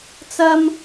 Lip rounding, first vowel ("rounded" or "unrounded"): unrounded